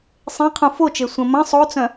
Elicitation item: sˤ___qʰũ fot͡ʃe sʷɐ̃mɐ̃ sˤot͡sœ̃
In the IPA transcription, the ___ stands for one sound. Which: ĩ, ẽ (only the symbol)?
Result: ẽ